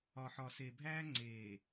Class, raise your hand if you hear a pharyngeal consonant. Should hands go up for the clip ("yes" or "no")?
yes